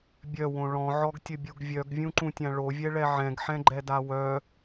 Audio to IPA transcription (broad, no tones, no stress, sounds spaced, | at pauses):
bʲ œ w õ ɭ ɔ̃ ʕ ɔ ɡ tʲ ə bʲ u ɡ vʲ œ ɡ vʲ ũ ǃ ũ tʲ ã ɭ o vʲ ɛ ɭ ɛ ʕ ɛ̃ ɡ ħ ɛ̃ ɡ͡ǃ ɛ d a w œ